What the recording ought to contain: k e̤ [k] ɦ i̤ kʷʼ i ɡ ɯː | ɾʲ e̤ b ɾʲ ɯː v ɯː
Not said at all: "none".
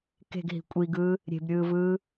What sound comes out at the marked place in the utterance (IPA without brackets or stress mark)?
ɡ